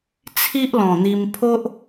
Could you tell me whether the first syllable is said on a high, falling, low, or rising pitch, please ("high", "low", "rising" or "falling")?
high